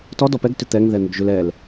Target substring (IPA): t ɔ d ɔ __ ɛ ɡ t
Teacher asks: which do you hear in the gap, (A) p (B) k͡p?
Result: A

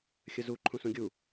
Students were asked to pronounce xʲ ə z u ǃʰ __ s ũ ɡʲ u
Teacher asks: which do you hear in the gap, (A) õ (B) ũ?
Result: B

